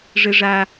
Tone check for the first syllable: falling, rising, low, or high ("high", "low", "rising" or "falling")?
high